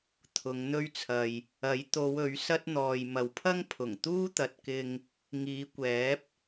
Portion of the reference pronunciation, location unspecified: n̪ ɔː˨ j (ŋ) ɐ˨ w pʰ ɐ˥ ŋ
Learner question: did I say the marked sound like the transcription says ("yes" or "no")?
no